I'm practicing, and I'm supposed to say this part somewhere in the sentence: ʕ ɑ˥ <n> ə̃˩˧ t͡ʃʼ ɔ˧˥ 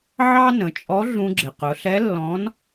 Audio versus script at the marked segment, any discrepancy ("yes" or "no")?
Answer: no